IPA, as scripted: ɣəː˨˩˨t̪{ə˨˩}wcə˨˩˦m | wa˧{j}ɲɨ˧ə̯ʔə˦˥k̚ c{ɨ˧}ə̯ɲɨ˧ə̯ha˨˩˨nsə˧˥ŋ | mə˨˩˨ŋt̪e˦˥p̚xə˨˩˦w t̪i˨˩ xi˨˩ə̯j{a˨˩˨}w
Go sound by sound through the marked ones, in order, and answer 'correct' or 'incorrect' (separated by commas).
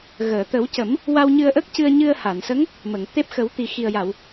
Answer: incorrect, incorrect, correct, correct